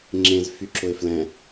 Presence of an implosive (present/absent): absent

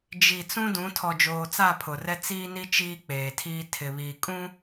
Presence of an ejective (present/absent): present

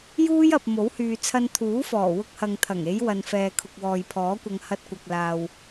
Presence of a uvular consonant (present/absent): absent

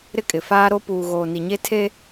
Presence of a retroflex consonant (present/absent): absent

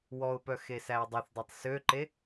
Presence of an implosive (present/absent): absent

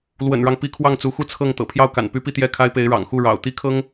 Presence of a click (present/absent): absent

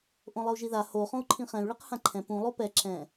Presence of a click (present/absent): present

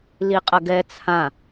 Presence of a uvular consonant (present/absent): present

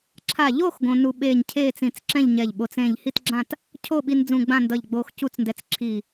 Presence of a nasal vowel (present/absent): present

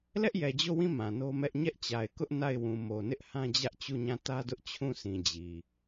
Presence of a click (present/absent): absent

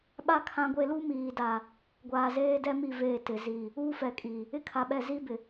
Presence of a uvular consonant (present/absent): absent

